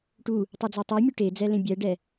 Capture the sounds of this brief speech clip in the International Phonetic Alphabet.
ʈ u | tˤ i d͡z a tˤ e mʲ u ʈ e d͡z ɛ l ẽ bʲ ɛ ɖ ɛ

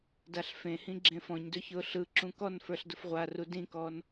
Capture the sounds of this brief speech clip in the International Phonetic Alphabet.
d a ɬ f ẽ h ĩ ɡ͡ǁ ẽ f ɔ̃ ɲ d ɵ ç ʊː ɬ ɯ ǁ ũ k ɔ n f ə˞ ɬ d ʊ f ʁʷ a r u d ĩ k ɔː n

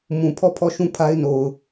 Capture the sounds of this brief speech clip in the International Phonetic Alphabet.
m ũ˨ pʰ ɔ˦˨ pʰ ɔ˦˨ ʃ ũ˦˨ pʰ a˦ ɪ̯ n o˨ ʊ̯

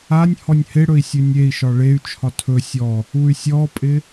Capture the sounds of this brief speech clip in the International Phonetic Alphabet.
a nʲ h ɔ nʲ h ɪ ɽ ɵ i̯ sʲ ɵ nʲ e i̯ ʃ ɒ ɭ e y̯ t͡ʃʰ ɒ tʰ ɵ sʲ ɔ | u y̯ sʲ ɔ pʼ ɪ

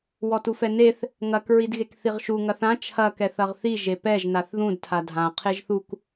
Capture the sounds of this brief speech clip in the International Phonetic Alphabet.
w ɔ t u f ɛ n e θ | ŋ ɐ k ɹ i d ɣ e k θ i ʁ ʃ u ŋ ɐ θ ã t͡ʃʰ ɐ k ɛ θ ɐ ʁ θ i ʒ e p ɛ ʒ n a θ ð ũ d tʰ a dʱ ã qʰ e ʒ θ u k

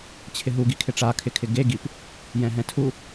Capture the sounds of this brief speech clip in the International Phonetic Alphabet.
t͡ɕʰ ɪ ɦ u ɡ i kʰ ɪ ʈ͡ʂ a kʰ ɪ kʰ ɪ ɡ e ɡ i p | j ɛ̃ ɦ ɛ̃ tʰ u

